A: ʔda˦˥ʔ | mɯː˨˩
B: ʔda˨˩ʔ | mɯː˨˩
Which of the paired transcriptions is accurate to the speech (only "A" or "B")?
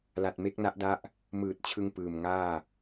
A